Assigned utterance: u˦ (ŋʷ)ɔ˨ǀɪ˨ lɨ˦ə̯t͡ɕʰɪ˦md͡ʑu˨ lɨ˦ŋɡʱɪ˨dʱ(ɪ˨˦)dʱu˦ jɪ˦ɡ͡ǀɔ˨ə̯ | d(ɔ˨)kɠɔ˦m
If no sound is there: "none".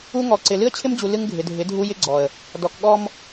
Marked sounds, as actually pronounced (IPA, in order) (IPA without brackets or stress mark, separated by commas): ŋ, ɪ˨˦, ɔ˨